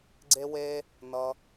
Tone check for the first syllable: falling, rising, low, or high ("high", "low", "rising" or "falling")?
high